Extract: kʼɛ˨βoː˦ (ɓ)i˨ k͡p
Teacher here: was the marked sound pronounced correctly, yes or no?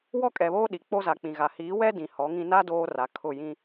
no